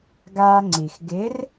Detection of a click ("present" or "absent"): present